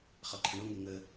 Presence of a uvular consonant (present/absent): present